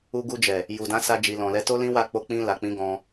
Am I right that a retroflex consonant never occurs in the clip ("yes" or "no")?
yes